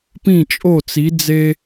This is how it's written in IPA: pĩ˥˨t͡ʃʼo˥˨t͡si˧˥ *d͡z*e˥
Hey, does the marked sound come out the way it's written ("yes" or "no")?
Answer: yes